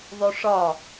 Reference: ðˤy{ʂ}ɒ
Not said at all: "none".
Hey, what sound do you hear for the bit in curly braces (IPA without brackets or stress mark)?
ʂ